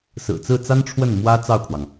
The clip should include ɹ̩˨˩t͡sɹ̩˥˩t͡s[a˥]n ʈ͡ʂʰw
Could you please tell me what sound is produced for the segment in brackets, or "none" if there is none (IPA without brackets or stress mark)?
a˥